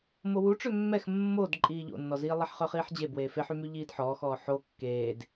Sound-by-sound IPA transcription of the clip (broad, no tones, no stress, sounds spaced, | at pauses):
m o w u ʈ͡ʂ ø mː ɛ x mː o d ǃʼ iː ʎ o̰ nː ɔ z iː lˠ ɛ ħ χ œ χ iː ħ d͡ʑ e b w eː f e ħ y m y ʎ iː d ħ ɔː x ɔː ħ o kː eː d